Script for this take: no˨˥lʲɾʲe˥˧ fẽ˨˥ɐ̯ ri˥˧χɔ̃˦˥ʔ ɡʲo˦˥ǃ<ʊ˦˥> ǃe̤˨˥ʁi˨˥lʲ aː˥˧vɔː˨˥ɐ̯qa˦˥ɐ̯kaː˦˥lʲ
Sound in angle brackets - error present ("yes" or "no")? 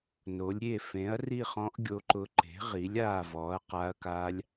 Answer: no